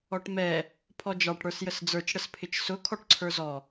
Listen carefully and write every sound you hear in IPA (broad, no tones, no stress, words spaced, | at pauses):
ɔʈmɛ | pʰɔd͡ʒɑʈ ɽə˞sjəsd͡zə˞t͡ʃ ɽəspʰɪt͡ʃsʊ kʰɔʈǀʰə˞zɔ